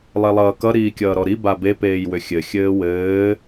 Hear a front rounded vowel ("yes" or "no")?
yes